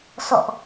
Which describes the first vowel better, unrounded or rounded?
rounded